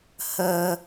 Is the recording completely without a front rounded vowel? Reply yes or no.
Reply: yes